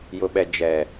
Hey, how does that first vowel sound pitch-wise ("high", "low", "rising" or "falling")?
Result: low